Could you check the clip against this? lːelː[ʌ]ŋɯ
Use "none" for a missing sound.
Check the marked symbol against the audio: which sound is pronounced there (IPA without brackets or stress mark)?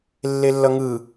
ʌ